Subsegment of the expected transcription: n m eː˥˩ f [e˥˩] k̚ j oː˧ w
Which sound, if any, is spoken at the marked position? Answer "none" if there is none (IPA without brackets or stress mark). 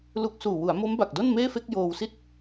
e˥˩